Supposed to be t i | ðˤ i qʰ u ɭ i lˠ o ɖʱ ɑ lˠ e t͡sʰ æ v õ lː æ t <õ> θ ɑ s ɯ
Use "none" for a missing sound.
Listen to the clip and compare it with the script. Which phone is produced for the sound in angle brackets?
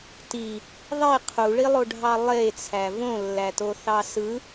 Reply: o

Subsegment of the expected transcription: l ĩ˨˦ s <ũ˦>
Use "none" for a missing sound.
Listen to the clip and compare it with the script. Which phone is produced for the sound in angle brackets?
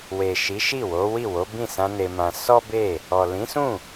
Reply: ũ˦˨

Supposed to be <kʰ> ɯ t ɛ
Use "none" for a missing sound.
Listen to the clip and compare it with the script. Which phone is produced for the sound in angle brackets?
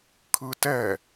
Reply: kʰ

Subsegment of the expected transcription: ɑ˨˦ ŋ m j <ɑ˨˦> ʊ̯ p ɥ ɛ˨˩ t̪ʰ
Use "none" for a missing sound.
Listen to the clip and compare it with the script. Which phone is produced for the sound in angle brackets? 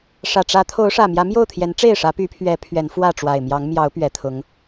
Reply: ɑ˨˦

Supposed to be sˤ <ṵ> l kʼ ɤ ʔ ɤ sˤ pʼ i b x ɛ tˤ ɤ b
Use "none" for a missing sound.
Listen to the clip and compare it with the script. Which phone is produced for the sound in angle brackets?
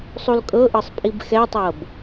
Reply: u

